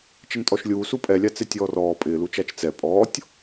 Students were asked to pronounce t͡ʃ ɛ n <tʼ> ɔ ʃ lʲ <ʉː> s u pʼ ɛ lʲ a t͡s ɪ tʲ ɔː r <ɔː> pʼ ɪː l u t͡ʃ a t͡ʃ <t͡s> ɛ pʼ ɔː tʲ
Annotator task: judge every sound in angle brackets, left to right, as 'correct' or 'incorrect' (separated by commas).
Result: correct, incorrect, correct, correct